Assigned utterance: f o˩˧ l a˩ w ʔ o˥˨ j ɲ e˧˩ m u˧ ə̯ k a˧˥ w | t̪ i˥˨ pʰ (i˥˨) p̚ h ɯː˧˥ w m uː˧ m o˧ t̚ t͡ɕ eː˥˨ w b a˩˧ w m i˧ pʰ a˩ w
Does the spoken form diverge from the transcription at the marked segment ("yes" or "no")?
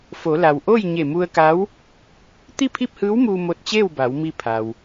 no